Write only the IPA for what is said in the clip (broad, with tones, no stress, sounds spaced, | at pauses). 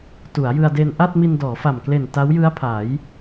t u˩˦ a̯ j ɯ˧ a̯ d e˧ n ʔ a˥˩ t̚ m i˧ n d ɔː˩˦ f a˨˩ m k l e˨˩ n t a˦˥ w j ɯ˦˥ a̯ pʰ a˩˦ j